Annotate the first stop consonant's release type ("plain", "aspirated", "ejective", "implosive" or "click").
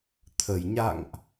aspirated